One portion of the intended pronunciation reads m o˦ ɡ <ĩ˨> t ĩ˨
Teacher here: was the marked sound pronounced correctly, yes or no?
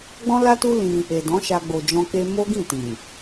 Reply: no